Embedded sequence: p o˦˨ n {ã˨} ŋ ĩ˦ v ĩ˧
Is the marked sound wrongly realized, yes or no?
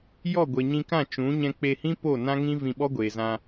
yes